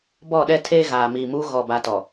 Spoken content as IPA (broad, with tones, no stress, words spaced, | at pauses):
bɔ˦˨ɗɛ˦tʰeː˦ ɣaː˨miː˨muː˦ ɣɔ˦˨ba˦tɔ˨